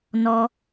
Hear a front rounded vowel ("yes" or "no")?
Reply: no